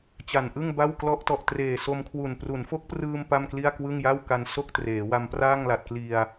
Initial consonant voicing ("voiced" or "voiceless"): voiceless